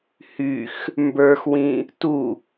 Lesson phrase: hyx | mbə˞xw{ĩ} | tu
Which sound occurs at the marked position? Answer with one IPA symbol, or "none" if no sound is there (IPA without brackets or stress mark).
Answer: ĩ